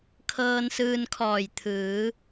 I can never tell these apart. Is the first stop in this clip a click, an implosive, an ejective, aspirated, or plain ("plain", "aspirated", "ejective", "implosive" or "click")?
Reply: aspirated